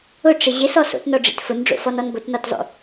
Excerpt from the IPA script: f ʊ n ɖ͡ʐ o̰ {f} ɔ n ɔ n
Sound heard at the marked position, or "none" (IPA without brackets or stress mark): f